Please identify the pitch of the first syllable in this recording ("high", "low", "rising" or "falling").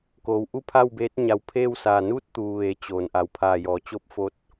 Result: low